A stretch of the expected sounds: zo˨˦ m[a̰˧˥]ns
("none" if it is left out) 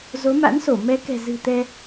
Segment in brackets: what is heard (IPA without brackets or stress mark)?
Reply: a̰˧˥